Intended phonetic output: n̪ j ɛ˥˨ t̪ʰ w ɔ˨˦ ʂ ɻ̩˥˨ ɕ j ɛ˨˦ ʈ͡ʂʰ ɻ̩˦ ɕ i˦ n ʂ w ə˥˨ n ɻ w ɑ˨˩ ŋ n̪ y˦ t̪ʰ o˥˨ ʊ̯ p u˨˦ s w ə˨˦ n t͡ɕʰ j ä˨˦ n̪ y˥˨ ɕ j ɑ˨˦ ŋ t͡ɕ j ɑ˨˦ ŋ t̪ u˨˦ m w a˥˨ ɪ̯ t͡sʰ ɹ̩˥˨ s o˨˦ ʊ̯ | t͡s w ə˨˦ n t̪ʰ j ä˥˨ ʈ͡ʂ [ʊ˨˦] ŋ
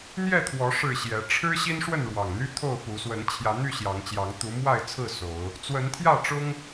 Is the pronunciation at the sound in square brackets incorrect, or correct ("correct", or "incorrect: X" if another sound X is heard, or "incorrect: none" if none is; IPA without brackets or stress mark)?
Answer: incorrect: ʊ˦